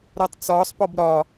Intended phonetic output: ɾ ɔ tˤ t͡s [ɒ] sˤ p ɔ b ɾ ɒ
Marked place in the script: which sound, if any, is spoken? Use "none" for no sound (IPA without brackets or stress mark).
ɒː